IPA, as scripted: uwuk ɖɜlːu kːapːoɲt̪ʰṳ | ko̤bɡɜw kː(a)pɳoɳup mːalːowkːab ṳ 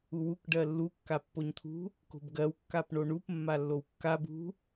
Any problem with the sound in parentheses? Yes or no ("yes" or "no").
no